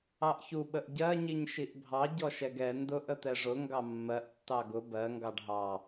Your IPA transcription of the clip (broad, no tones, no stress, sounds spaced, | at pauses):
ɑ ʔ ç u ɓ ə ʔ ɟ ɜ ɲ i ɲ ʃ i ʔ bʱ ɑ ɟ ɔ ʃ ɛ ɡ ɛ n d ʊ ʔ ə t̪ ɛ ʐ ʊ ŋ ɡ ɑ mː ɜ ʔ tː ɑ ɡ ʊ b ɜ ŋ ɡ ɑ ɖ ɦ ɑ